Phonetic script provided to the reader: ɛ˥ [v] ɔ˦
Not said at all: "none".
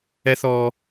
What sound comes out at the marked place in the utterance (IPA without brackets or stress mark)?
θ